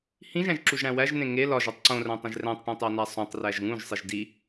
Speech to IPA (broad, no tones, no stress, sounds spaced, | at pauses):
h ĩ ʒ æ̃ ʒ ǁ u ʒ ɽ æ̃ w æ ʒ n ẽ ŋ e l ɒ ʒ o tˤ ǀ õ r æ̃ tˤ ĩ ʒ r æ̃ tˤ ʈ õ tˤ æ n æ sˤ õ tˤ r æ ʒ ŋ ũ ʒ sˤ i ʒ d i